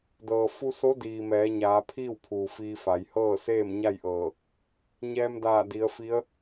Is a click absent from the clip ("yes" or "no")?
yes